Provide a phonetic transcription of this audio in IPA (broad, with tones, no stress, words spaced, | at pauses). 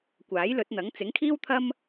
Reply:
kʷaː˨˥jlɵ˨˥t̚n̪ɐ˨˥ŋ t͡sɪ˨˥ŋkʰiː˥wt̪ʰɐ˥m